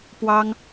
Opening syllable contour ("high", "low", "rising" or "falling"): high